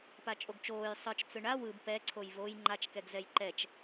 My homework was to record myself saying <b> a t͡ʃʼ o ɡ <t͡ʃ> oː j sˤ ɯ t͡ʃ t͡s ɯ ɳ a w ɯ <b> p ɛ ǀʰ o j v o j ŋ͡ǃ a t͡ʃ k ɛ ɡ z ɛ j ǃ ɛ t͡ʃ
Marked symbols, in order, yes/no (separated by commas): no, yes, yes